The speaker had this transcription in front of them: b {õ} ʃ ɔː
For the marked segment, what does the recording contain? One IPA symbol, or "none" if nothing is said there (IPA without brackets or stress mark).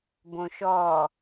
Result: õ